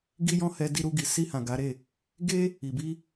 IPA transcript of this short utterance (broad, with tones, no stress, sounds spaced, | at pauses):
ɡ i˦ j ɔ̃˦ h ɛ˧ d i˧ ɾ u˧ ɡ i˨ s i˧ h ã˨ ɡ a˨˦ ɾ e˦˨ | ɡ e˦ | i˨ b i˧